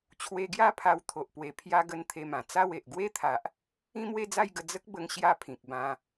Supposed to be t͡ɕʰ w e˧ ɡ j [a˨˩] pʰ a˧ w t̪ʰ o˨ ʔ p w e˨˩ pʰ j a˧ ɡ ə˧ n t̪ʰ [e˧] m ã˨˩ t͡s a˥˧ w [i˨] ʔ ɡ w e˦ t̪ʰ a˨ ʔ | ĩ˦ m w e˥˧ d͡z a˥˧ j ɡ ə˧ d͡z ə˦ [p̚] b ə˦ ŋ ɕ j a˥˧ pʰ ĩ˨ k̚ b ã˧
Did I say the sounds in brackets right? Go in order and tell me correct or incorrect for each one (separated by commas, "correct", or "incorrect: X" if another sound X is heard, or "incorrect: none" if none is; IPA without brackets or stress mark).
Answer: incorrect: a˥˧, correct, incorrect: e˨, incorrect: k̚